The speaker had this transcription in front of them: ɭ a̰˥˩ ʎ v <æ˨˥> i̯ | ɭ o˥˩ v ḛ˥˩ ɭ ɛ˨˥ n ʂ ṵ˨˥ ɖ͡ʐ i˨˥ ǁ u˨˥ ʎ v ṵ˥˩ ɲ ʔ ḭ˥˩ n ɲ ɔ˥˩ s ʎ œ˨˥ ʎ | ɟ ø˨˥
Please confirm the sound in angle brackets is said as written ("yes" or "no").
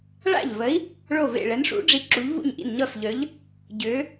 no